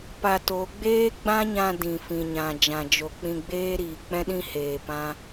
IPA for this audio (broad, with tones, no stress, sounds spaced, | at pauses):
p a˧ t o˨˦ ɡ͡b eː˦ ɡ͡b ã˦ ɲ ã˧ d ĩ˨ f ĩ˨ ɲ ã˨ d͡ʒ ã˨ d͡ʒ o˨ k͡p ĩ˧ ɡ͡b eː˦ ɾ iː˨ k͡p ɛ̃˦ ɗ ĩ˦ h eː˨ p ã˦